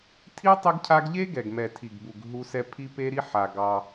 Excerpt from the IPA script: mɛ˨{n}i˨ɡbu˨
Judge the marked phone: incorrect: tʰ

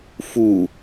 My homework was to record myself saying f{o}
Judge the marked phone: incorrect: u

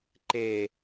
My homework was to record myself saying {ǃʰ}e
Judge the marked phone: incorrect: ǃ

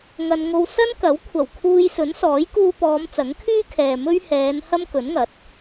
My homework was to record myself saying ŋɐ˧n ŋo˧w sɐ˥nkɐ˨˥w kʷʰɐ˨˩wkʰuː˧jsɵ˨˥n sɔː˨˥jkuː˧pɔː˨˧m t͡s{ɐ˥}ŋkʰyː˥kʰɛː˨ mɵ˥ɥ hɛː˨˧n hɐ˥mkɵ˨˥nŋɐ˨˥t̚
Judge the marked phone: incorrect: ɐ˨˥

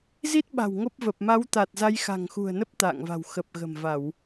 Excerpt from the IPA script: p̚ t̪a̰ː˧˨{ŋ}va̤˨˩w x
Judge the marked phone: correct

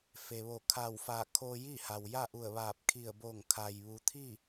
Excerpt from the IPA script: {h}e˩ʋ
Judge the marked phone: incorrect: f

